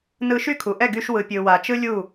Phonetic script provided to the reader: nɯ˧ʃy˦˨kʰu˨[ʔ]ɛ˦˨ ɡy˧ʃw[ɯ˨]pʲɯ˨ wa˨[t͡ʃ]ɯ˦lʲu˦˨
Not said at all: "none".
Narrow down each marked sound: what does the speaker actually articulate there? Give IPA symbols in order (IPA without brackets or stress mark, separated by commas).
ʔ, ɯ˨, t͡ʃ